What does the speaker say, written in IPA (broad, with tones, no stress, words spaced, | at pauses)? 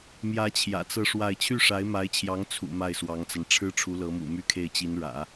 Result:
mjä˧˥ t͡ɕʰjä̰˨˩t͡sɤ˥˧ʂwa˥˧ɪ̯ t͡ɕʰy˥˩ʂa˧˥ɪ̯ma˧˥ɪ̯t͡ɕʰjɑ˧˥ŋ t͡sʰṵ˨˩ ma˥˩ɪ̯swɑ˧˥ŋt͡sa˧n ʈ͡ʂʰɻ̩˥ʈ͡ʂʰu˧˥lɤ˧˥mṵ˨˩ my˥kʰe˥˩ɪ̯t͡ɕi˧˥nɻä̰˨˩˦